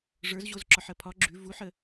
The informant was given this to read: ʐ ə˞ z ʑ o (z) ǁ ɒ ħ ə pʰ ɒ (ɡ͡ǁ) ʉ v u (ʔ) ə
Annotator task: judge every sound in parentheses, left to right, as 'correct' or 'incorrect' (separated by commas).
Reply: correct, correct, incorrect